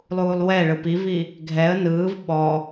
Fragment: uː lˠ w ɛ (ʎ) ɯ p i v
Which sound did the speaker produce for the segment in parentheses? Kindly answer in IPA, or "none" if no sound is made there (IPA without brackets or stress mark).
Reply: ɭ